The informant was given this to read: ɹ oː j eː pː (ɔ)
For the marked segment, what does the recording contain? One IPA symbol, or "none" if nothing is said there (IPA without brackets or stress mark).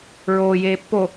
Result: o